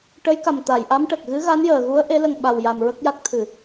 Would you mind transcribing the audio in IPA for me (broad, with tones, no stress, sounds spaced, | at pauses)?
ʈ ə˧˥ j k a˨˩ m t̪ a˨˩˨ j ʔ a˧˥ m ʈ ə˨˩ k̚ ɣ ɨ˧˥ ɣ a˧˥ n j əː˨˩ ɣ u˧˥ ə̯ ʔ e˧˥ l ə˧ ŋ ɓ a˧ w j a˧ m ɹ ə˦˥ k̚ j a˦˥ k̚ t̪ʰ ɨ˨˩˨